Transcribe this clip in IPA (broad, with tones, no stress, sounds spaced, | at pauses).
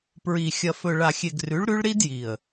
p ɹ i˨ xʲ ɐ˨ f ɵ˨ ɭ a˨ xʲ e˨ ɡ r ʉ˨˦ ɭ ɾ ʉ˦ ɭ ɾ i˦ d j i˨ ə̯